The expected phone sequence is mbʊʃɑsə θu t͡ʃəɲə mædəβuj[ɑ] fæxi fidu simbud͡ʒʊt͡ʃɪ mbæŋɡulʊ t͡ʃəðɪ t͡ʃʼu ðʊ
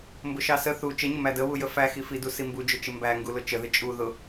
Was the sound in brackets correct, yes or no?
no